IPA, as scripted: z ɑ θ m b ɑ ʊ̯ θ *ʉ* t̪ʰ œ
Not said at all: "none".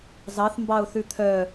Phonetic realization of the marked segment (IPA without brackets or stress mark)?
ʉ